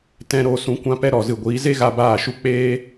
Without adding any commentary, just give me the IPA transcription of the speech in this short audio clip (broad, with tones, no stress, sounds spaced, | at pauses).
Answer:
t ɛ̃˧ ɾ oː˧ s ũ˧ kʷ ã˦ p ɛ˦ ɾ ɔ˨ z ɨ˨ ɡʷ iː˨˦ z e˦ ɣ a˧ b aː˦˨ ʃ u˦ k͡p eː˧